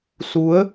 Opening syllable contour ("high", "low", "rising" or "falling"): rising